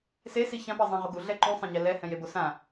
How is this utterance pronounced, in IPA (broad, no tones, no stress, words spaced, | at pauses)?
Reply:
sesi çãpɛzˤæ̃ʁo ɡuɮɛ ǃũsˤɛ̃ ɲɛlɛ hɛ̃jebosã